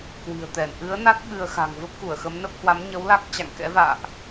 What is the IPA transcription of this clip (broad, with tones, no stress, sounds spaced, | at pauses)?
k w i̤˨˩ ə̯ t̪ ɛ˧˩ n ʔ ɨ˨˦ ə̯ n a˦˥ t̚ ɓ ɨ˧ ə̯ x a̤˨˩ ŋ v ə˦˥ p̚ k u˧˩ ə̯ x ə˨˦ m n ə˦˥ p̚ h w a˨˦ m ɲ ə˨˦ w l a˦˥ k̚ t͡ɕ a̰˧˨ ŋ k ɛ̰˧˥ v a̰ː˧˨ ʔ